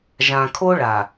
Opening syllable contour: low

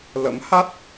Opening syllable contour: rising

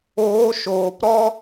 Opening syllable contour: rising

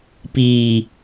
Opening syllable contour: low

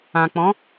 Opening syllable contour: low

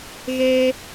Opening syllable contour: high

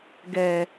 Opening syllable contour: low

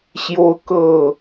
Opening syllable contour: high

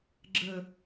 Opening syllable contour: low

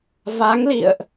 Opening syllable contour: rising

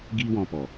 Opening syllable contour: high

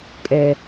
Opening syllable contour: low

